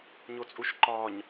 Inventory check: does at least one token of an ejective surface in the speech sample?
yes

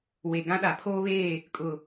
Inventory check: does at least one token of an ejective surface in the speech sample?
yes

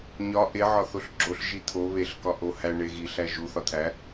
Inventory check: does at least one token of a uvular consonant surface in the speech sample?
no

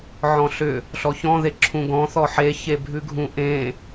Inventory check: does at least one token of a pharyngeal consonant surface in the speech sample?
yes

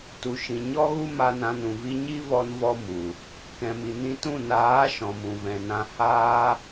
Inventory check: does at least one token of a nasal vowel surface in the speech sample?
yes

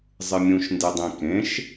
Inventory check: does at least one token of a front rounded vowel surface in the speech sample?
no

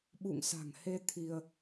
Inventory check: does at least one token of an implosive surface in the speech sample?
yes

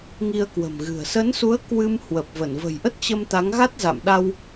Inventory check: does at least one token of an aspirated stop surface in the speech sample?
no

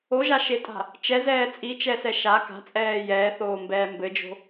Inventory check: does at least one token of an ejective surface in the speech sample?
yes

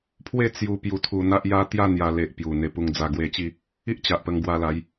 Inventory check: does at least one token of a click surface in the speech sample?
no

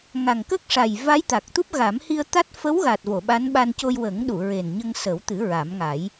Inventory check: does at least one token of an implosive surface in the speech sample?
yes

